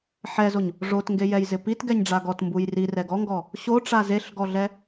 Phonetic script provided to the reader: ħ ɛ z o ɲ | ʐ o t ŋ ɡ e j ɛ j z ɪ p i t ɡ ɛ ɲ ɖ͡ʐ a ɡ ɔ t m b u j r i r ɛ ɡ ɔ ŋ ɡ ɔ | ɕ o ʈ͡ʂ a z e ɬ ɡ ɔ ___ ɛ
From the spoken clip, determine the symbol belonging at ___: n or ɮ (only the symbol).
ɮ